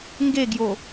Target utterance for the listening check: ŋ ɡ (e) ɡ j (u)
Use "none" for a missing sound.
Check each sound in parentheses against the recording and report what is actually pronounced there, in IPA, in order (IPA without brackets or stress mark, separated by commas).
e, o